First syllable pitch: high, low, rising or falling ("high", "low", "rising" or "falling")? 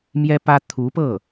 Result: high